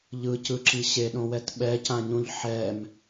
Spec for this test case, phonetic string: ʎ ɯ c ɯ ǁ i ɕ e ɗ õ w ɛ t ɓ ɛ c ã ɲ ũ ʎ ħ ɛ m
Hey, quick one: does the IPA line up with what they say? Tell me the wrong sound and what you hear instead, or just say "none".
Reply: none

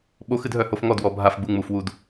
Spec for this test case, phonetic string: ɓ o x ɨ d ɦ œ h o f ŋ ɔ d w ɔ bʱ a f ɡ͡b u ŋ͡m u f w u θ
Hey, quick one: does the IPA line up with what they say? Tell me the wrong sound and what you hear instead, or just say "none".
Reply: θ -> d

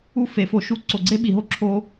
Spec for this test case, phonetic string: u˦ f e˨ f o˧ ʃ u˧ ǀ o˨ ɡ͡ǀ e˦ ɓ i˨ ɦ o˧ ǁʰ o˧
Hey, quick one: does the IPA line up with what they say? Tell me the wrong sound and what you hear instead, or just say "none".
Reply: none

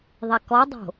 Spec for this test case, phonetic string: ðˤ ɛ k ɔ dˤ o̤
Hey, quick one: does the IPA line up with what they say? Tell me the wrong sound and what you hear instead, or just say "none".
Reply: none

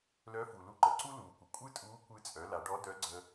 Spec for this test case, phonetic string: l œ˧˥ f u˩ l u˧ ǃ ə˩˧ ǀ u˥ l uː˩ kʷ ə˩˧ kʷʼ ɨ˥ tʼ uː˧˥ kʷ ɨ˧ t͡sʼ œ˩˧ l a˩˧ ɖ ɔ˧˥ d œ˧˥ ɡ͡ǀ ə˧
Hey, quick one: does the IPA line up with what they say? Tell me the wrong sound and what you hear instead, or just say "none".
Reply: none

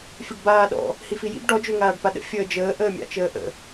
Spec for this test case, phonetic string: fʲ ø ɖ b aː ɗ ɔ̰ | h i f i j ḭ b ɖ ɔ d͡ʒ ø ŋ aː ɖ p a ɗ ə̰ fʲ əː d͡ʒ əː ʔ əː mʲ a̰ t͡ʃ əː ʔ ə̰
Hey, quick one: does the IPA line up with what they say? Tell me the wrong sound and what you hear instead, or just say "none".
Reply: none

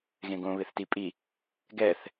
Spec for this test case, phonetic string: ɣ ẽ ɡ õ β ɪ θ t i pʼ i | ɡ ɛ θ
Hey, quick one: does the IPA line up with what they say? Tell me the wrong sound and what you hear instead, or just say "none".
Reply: none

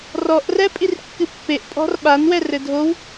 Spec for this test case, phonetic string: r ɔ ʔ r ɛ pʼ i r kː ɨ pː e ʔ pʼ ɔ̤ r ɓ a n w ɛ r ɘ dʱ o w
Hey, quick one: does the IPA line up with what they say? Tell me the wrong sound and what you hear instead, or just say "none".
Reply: none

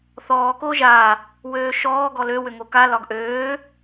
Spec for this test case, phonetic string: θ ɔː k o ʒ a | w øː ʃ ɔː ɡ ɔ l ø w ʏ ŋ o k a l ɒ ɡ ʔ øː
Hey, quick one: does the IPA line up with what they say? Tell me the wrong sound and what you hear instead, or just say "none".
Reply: none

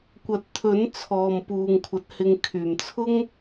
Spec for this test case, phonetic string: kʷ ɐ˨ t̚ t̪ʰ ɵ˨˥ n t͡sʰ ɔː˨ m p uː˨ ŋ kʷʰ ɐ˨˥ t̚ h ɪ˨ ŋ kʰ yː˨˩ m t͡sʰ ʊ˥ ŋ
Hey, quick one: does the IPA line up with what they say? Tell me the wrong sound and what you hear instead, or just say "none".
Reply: none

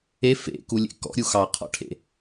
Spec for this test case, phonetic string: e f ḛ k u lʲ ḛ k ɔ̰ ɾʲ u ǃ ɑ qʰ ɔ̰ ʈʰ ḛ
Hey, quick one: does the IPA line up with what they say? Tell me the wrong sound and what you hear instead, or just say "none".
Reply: ǃ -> x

